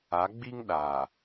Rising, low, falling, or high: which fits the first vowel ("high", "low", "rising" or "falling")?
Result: rising